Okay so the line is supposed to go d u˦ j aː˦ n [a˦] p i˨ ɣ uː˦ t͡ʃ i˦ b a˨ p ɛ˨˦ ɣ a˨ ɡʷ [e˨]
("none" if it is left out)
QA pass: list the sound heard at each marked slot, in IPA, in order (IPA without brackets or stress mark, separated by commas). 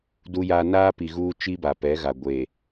aː˦, e˨